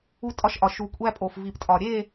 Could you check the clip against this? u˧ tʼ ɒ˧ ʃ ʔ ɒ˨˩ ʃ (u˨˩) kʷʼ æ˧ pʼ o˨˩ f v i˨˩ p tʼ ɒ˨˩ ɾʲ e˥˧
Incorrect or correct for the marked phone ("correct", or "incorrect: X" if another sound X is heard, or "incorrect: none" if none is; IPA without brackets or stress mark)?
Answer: correct